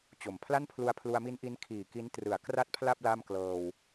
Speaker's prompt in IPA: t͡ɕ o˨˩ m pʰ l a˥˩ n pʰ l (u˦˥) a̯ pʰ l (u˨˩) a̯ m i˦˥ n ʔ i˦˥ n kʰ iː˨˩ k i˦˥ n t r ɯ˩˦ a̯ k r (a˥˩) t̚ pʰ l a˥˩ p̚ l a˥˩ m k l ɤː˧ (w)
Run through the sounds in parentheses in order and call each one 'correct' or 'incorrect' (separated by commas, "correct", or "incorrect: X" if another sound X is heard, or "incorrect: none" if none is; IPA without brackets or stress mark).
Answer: incorrect: u˧, incorrect: u˧, correct, correct